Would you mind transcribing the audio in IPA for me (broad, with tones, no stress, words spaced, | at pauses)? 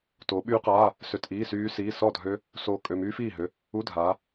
toː˨˦ɓyː˦˥qaː˧˥˧ | sø˧˥˧tʔiː˧˥˧syː˦˥siː˧˥˧ sɔ˥˨dʱø˦˥ | soː˦˥kʼø˧˥˧ myː˦˥fiː˥˨ ɦø˧˥˧ | u˧˥˧dʱaː˨˦